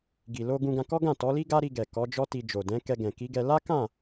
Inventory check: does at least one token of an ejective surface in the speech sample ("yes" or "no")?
no